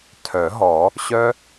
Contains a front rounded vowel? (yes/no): yes